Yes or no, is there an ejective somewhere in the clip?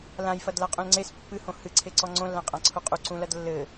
yes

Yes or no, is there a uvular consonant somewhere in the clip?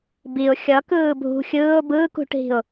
no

